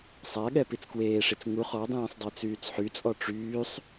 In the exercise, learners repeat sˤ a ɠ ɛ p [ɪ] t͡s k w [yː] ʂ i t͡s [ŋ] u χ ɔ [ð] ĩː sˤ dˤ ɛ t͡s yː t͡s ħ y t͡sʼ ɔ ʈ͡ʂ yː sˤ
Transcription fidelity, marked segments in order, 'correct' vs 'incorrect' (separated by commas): incorrect, incorrect, correct, incorrect